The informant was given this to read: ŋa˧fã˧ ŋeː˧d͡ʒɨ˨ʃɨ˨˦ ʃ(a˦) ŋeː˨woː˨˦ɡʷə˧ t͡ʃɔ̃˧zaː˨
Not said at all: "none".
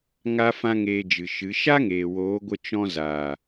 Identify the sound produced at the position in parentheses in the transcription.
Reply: a˦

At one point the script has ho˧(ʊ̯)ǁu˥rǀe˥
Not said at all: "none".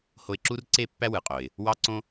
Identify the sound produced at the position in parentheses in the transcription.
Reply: ɪ̯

